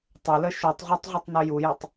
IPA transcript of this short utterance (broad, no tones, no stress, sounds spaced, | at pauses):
tˤ ɪ l ə ʃ u tˤ ʁʷ ɑ tˤ ʁʷ i tˤ n ʊ j u j ɪ tˤ